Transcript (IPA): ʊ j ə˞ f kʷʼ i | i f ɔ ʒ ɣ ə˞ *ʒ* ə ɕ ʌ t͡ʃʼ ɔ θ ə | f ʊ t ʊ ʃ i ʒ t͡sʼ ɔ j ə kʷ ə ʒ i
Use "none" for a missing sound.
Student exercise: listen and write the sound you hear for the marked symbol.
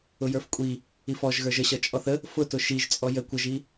ʒ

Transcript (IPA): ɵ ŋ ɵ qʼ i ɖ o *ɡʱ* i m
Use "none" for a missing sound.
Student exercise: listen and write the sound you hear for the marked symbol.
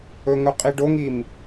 ŋ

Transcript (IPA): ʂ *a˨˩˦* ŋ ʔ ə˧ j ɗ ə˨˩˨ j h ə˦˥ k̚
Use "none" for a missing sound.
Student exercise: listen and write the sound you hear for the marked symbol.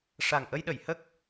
a˨˩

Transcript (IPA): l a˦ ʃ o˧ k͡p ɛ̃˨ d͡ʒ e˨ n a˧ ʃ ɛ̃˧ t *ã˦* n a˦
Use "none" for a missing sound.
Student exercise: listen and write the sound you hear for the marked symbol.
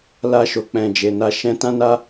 ã˦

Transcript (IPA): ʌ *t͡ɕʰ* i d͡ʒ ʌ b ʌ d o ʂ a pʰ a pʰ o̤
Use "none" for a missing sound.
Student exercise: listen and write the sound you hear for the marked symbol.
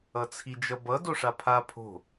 t͡sʰ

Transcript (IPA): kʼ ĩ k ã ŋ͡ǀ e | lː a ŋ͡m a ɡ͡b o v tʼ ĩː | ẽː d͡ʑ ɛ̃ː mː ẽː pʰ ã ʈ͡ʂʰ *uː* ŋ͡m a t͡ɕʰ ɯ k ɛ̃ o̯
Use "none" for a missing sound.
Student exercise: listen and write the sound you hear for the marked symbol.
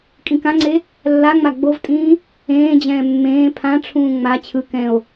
ũː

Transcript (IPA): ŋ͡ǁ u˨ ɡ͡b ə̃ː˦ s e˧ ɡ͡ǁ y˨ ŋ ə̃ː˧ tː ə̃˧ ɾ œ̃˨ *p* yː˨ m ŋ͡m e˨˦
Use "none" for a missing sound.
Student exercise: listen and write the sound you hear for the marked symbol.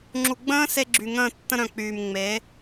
k͡p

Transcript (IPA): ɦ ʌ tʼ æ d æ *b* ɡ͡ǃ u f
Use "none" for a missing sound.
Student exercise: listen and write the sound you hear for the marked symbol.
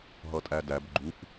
b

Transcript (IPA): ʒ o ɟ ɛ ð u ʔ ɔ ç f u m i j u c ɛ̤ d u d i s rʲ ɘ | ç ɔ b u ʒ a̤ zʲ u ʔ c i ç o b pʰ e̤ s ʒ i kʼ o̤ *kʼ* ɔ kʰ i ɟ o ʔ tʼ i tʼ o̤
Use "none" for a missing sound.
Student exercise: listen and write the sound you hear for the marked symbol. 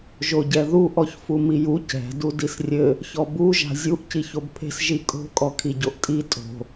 kʼ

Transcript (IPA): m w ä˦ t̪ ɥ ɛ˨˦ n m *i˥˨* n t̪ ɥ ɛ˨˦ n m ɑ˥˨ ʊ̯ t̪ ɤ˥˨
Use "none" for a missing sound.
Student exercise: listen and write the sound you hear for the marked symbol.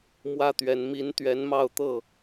i˨˦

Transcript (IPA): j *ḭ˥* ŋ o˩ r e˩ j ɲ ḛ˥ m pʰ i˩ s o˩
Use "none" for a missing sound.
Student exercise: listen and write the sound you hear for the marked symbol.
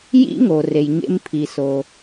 ḭ˥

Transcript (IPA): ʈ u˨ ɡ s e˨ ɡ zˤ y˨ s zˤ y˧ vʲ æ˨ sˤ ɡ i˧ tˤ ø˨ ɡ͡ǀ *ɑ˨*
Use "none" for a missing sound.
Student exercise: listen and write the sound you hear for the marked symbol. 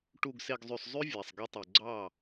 ɑ˦˨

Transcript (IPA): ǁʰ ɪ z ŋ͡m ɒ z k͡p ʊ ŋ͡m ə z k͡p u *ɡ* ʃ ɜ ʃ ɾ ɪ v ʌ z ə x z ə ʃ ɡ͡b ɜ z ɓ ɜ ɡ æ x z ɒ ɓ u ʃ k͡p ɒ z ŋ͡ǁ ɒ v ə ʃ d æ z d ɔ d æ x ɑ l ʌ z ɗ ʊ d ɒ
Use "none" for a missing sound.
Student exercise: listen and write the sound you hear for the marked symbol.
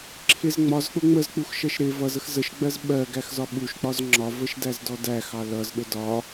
x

